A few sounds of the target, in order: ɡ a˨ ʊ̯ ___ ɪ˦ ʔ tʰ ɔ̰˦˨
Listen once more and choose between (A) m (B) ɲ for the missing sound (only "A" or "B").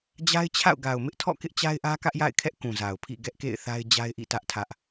A